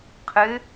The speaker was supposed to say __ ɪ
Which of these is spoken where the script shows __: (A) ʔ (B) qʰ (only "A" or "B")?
B